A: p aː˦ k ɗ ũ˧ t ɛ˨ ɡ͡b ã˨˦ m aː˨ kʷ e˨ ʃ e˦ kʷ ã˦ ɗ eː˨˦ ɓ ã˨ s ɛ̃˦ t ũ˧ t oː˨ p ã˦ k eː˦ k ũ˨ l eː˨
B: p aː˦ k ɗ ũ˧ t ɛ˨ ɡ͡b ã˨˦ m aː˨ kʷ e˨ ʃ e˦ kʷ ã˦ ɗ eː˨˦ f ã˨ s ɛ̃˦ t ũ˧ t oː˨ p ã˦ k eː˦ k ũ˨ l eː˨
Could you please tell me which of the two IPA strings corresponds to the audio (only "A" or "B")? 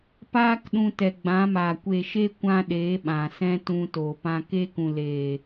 A